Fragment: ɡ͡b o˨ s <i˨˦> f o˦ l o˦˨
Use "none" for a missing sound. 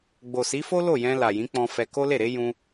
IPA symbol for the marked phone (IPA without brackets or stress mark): i˨˦